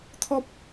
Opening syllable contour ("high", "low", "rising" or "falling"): high